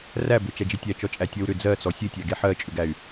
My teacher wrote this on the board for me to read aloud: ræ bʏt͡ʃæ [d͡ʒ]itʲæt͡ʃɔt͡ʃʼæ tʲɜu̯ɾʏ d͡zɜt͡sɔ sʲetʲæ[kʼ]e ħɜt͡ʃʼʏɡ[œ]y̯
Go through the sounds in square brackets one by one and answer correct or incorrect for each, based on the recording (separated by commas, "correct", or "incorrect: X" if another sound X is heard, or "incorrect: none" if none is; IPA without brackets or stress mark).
correct, incorrect: ɡ, incorrect: æ